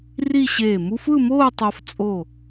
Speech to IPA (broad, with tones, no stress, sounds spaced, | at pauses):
r i˥˧ ɕ eː˧˩ m u˥ f ɯ˥˧ m oː˥˧ tˤ o˧ f t͡sʼ o˧˩